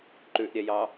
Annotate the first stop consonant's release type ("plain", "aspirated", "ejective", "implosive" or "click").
click